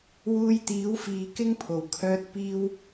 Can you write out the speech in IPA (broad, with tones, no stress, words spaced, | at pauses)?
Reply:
wuː˧jt̪iː˨˥wfiː˨ kɪ˥ŋpʰo˨˩wkʰœː˧t̚ piː˧w